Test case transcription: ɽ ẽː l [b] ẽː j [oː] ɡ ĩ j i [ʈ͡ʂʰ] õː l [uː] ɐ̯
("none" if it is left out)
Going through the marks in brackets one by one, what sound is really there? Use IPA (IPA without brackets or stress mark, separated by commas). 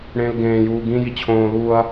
ɡ, uː, t͡ɕʰ, uː